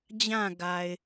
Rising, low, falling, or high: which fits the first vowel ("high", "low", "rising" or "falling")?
falling